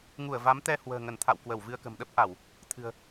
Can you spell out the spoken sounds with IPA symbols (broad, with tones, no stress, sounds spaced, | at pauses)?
ŋ u˧˩ ə̯ v a˨˦ m t̪ ɛ˧ h w ə̤ː˨˩ ŋ ə˧˩ n t̪ʰ a̰˧˨ w k w ə˧˩ w v ɨ˧ ə̯ k ə̤˨˩ m ɗ ə˦˥ p̚ ʔ a˧˩˨ w | t̪ʰ ɨ̤˨˩ ə̯